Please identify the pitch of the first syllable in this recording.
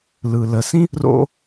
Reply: low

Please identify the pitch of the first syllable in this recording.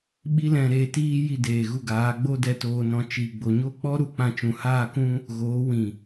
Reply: high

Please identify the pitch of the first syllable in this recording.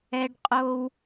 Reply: high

